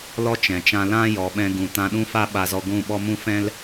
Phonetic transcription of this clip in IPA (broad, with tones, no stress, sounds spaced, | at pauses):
l ɔ˦ t͡ʃ ɛ̃˨ t͡ʃ ã˦ l ã˦ j ɔ˨ ɓ ɛ̃˧ ɡ ũ˨ t ã˧ ɗ ũ˦ f a˦ ɓ a˧ z ɔ˧ ɡʷ ũ˦˨ ɓ ɔ˦ m ũ˦ f ɛ̃˦ l